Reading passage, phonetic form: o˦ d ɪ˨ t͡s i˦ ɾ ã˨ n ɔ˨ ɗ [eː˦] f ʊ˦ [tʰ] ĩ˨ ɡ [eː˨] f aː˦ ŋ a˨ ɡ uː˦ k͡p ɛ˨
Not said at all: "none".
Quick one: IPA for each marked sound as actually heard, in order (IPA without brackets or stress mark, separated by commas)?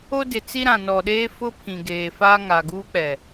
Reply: eː˦, pʰ, eː˨